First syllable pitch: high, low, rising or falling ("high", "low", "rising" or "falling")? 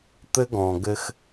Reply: high